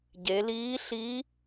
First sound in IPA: ɟ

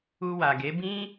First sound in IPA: u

